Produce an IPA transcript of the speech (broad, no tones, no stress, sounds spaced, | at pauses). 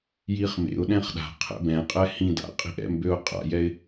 j i χ m ḛ ʊ̯ ɗ ɛ̃ χ ɗ a̤ qʰ ɛ̰ b ɛ̃ qʼ ɛ h ĩ d a̰ qʼ i̤ ʔ ɛ̰ m b ø ʊ̯ qʼ a̰ j ɛ ɪ̯